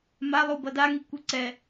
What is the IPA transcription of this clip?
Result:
m a lˠ u b ʌ d a ŋ i kʷ i ǀ ɛ

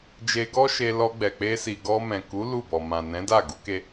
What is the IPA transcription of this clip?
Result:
d͡ʒ e˧ ɡ ɔ˦ ʃ e˧ l ɔ˧ ɡ͡b ɛ˨ k͡p e˧ s i˨ ɡ ɔ˧ m ɛ̃˨ k u˨˦ l u˦˨ b ɔ˨ m ã˨ n ɛ̃˨˦ d a˦˨ ɡ u˨˦ k e˧

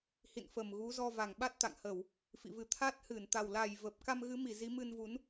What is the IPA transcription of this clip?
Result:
h ḭ˧˨ n f ə˨˩ m ɣ u˨˦ z ɔ˧ v a˨˩ ŋ ɓ a˦˥ t̚ t̪ a̰˧˨ ŋ h ə˧˩˨ w | f ḭ˧˨ v ɨ˨˩ t̪ʰ a˦˥ t̚ h ɨ˧˩ n t̪ a˨˩ w l a˨˩ j v ə˨˩ p̚ k a˧ m ɣ ɨ˨˦ m i˧˩ z i˨˦ m ɨ˧ n v u˨˦ n

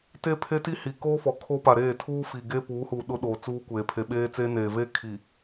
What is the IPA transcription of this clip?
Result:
t e˦ pʰ e˦ t i˦ h i˨ k oː˦ f ɔ˨ kʰ oː˦ p a˨ ɾ eː˦˨ tʰ uː˦ f i˨ ɡ eː˦ p uː˨˦ h uː˨ ɗ ʊ˦ ɗ oː˨ t͡s uː˦ kʷ eː˨ pʰ e˨ ɓ eː˦ t͡s eː˦ n eː˨ v eː˦ kʰ i˨

